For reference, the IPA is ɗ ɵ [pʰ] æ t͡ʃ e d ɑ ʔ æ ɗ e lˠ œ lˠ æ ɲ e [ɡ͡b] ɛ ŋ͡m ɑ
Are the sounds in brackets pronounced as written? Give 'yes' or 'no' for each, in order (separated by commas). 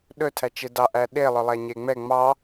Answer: no, no